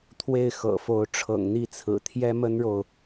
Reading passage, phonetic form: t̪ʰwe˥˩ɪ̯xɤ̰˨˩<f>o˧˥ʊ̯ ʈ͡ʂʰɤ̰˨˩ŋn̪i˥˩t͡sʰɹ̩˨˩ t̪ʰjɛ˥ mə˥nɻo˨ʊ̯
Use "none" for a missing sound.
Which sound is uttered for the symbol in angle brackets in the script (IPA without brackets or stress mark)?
f